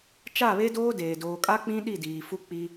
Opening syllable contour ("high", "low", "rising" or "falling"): falling